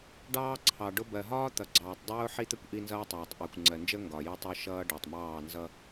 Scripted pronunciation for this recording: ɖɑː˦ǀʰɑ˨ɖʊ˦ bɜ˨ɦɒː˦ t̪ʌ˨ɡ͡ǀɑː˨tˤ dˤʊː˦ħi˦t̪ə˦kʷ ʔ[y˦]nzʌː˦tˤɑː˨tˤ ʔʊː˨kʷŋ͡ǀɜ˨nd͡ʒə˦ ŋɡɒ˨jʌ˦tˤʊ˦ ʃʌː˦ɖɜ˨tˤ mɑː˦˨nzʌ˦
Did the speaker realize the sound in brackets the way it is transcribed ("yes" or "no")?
no